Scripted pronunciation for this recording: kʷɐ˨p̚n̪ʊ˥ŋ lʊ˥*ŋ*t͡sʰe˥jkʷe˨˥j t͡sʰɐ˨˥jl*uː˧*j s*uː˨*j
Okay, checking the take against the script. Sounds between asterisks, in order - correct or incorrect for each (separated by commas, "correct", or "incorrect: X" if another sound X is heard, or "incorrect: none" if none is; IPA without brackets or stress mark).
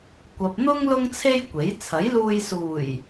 correct, correct, incorrect: uː˨˩